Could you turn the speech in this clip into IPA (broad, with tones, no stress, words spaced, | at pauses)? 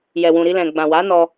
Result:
jɛ˨wũ˨ɾi˧ lɛ̃˨ ɡ͡bã˨wa˨˦nɔ˧